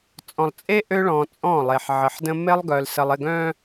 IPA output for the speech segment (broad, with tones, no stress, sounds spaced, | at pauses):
t͡sʼ ɔ̃˨ lˠ t͡sʼ e˦ ʔ ø˦ ɭ ɔ̃˨ t͡sʼ ɔ̃˦˨ lˠ e˨ ħ ʕ ə˨ ħ d ə̃˦ m ɪ˦ lˠ ɡ œ˨ l s ə˨ lˠ ɪ˦˨ ɡ œ̃˦